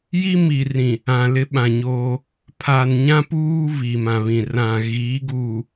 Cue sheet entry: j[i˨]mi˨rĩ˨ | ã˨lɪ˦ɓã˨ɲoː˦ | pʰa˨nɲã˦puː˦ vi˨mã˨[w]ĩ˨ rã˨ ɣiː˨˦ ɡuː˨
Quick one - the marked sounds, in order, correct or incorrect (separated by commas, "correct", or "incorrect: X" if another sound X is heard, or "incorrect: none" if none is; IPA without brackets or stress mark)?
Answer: incorrect: i˦, incorrect: β